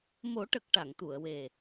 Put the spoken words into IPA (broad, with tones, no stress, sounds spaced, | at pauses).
m o˨˩˦ ʈ ə˨˩ k̚ ʈ a˨˩˨ ŋ t̪ u˨˩˨ ə̯ w e˨˩